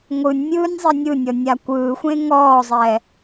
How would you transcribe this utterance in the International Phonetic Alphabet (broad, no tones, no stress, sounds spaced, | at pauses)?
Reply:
ŋʷ ɯ nʲ mʲ ɯː nʲ zˤ e nʲ ɯ nʲ ɔ nʲ a kʷ ɯː xʷ ẽ ŋ ɔː zˤ ɛː